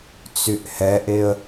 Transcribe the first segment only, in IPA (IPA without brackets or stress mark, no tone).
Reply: t͡s